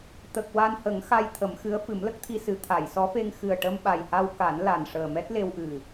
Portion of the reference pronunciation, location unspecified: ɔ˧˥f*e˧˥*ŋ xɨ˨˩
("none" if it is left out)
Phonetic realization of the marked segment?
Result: e˧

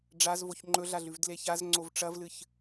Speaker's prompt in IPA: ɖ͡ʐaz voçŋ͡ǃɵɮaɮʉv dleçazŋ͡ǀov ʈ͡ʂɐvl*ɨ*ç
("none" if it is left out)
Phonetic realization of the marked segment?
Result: ɨ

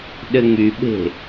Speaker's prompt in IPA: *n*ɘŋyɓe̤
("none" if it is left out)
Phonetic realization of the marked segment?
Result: ɗ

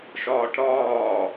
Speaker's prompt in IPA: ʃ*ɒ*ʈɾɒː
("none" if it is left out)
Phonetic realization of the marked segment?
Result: ɒː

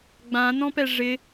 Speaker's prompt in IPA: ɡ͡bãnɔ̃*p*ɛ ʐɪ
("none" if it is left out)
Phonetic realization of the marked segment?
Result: p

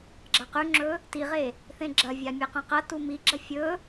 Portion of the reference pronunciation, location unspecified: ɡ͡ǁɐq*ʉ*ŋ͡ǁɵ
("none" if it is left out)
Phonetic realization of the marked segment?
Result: ʉ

